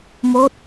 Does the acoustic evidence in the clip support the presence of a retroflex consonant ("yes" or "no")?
no